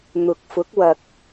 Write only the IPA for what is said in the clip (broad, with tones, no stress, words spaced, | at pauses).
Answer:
n̪ʊ˨k̚fʊ˨˥k̚ wɐ˨k̚